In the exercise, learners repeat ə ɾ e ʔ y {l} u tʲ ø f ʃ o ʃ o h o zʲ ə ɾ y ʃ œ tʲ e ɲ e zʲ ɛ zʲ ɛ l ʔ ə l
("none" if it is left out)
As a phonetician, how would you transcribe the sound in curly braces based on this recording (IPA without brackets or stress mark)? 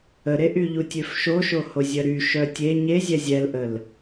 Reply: ʎ